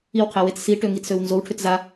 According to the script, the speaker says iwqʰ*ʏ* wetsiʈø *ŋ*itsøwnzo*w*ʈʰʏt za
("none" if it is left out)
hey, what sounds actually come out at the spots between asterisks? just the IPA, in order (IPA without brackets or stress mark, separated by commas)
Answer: ɛ, ŋ, w